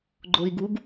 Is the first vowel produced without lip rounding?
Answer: no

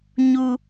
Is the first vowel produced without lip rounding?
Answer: no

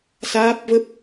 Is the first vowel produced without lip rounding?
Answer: yes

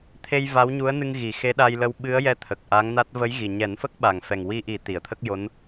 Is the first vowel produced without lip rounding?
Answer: yes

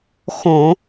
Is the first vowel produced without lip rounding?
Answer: no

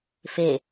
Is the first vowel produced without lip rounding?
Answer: yes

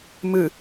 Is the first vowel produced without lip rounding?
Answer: yes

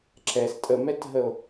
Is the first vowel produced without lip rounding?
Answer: yes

